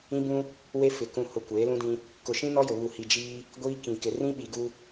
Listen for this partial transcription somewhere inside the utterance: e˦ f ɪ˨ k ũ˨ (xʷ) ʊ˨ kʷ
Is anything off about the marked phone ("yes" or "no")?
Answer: yes